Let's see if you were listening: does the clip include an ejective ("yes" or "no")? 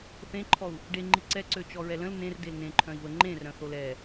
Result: no